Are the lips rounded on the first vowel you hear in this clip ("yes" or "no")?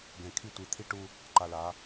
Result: no